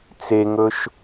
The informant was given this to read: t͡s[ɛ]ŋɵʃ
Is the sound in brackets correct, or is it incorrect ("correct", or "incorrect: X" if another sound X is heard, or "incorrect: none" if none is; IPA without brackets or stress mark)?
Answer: incorrect: e